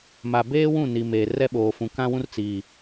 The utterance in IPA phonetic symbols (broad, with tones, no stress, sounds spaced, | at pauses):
m a˨ b eː˦ w ũ˦˨ n i˨ m eː˨ r ɛ˦ ɓ oː˨ f ũ˨ k ã˦ w ũ˦ r t͡s i˨